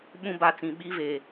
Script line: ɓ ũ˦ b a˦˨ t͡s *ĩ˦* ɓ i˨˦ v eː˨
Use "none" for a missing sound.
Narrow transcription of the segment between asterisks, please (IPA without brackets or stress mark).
ĩ˨